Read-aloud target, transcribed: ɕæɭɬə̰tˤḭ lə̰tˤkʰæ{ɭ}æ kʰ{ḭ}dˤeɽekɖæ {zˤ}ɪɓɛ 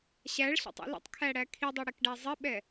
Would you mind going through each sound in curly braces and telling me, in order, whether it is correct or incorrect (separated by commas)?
incorrect, incorrect, correct